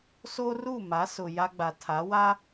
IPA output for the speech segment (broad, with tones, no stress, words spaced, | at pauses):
so˦ru˦˨ ma˨˦sʊ˨ ja˦ɡ͡ba˨tʰa˨˦ wa˦